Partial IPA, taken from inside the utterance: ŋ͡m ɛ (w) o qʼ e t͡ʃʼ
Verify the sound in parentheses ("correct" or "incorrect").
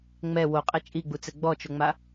correct